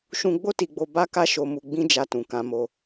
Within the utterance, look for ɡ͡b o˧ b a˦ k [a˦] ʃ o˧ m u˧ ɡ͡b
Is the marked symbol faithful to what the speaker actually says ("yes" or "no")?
yes